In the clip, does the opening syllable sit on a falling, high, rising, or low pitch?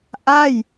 falling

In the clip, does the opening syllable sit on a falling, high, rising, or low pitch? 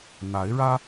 rising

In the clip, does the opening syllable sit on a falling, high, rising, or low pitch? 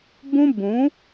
high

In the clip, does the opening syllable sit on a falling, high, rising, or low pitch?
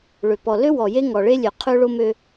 low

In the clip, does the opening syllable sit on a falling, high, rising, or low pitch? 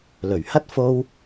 low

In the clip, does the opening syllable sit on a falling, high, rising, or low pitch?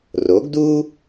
rising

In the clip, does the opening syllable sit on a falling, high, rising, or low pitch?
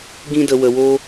high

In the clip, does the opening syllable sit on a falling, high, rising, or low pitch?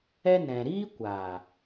high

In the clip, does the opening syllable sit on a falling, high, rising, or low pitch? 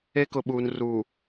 high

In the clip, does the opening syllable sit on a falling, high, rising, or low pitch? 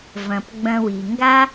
low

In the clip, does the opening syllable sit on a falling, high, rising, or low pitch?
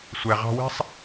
low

